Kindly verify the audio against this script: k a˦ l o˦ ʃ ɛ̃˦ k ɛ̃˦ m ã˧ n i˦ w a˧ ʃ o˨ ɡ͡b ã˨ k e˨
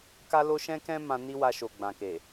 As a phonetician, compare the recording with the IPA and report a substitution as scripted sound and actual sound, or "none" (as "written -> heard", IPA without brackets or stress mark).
none